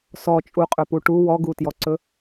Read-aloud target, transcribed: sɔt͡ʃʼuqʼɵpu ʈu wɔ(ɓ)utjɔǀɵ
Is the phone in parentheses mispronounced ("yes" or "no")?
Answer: yes